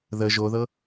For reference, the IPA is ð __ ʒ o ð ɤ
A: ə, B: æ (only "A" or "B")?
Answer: A